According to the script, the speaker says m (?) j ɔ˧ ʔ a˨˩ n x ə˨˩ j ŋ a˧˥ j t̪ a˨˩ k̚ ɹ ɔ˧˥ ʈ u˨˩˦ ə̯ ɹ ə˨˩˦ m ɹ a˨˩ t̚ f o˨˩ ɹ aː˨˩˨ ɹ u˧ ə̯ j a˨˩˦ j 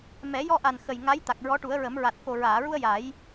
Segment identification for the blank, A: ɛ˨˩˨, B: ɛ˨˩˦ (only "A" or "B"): B